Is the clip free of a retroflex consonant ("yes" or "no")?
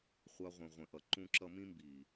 yes